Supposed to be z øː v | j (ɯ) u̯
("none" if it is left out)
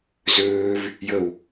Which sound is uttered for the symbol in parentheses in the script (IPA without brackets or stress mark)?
ə